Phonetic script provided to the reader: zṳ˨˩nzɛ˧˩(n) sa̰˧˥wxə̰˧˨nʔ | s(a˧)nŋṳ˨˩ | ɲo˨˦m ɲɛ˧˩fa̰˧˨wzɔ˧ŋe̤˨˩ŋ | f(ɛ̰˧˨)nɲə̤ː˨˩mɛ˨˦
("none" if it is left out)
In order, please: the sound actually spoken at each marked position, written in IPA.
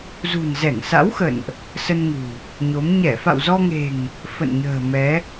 ŋ, ə˧, ə̰˧˨

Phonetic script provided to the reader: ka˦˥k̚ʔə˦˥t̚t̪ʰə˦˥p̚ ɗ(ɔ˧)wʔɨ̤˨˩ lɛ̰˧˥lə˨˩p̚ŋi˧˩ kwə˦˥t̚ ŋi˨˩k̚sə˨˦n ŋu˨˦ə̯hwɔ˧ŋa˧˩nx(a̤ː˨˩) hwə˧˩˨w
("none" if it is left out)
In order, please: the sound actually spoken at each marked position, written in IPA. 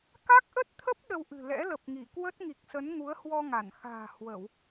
ə˧, a̤ː˨˩

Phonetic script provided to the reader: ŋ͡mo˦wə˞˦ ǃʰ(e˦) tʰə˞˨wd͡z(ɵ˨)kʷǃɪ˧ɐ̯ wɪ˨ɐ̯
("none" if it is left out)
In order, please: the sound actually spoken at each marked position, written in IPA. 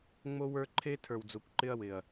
e˦, o˨

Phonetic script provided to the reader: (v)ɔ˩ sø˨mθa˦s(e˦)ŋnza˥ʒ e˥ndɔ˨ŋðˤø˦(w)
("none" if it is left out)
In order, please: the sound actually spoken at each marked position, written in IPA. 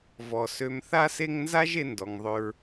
v, e˦, ɹ

